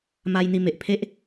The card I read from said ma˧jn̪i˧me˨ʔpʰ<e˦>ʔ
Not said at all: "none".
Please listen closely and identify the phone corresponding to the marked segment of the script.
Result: e˦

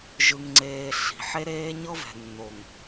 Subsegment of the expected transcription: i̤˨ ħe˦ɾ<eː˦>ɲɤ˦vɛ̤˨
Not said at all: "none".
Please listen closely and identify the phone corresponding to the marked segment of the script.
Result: eː˦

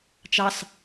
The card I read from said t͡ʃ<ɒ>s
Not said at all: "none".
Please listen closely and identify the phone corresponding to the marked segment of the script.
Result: ɑ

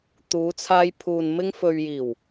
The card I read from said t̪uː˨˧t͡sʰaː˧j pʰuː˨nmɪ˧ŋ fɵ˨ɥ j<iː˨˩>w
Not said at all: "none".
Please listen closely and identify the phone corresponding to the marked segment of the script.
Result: iː˨˩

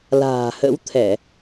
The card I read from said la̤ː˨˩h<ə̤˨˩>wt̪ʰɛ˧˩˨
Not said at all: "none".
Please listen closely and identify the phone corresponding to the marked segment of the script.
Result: ə̰˧˥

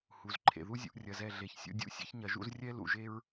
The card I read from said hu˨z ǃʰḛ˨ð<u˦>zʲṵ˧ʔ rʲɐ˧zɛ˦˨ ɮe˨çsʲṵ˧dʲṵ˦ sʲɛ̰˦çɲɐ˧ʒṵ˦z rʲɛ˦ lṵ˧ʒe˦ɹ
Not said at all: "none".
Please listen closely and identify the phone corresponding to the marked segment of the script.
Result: u˦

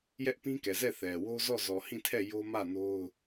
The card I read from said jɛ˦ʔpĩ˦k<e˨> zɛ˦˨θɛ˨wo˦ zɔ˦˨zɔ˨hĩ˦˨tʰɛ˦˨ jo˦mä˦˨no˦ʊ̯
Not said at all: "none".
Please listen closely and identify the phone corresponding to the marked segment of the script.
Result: ɛ˨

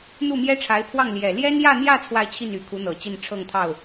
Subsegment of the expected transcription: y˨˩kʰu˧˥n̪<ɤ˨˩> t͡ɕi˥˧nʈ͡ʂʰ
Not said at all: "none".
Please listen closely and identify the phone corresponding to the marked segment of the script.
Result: ɤ˨˩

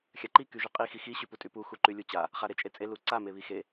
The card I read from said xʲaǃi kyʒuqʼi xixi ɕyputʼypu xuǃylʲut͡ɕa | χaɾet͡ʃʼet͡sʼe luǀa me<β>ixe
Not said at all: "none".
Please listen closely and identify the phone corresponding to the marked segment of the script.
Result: β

